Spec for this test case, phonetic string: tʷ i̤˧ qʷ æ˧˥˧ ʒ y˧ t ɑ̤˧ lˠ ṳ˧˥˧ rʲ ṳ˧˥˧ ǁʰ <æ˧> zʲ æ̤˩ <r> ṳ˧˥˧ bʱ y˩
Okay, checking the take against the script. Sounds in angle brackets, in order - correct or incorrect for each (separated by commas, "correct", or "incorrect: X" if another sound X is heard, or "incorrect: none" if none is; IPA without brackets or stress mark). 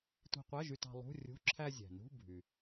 correct, incorrect: n